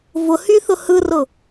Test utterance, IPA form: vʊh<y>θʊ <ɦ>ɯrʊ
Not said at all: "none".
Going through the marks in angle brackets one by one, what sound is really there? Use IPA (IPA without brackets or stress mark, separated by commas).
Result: y, h